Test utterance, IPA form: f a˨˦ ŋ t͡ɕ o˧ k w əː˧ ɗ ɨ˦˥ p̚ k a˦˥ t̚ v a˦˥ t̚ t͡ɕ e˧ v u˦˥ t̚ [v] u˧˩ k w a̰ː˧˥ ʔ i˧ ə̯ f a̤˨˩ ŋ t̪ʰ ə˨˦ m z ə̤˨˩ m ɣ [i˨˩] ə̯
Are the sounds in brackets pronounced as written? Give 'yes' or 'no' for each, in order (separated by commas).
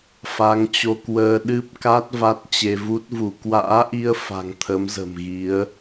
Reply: yes, no